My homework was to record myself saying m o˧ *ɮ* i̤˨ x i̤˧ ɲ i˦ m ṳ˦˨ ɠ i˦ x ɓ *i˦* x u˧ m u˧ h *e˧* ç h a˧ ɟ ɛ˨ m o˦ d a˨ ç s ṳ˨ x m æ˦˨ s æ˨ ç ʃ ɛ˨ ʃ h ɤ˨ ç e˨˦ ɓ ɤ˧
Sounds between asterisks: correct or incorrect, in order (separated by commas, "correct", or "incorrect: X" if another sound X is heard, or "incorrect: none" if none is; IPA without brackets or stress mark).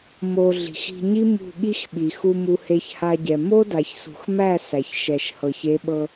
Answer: correct, incorrect: i˨, correct